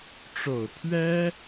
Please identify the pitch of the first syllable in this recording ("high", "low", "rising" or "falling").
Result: low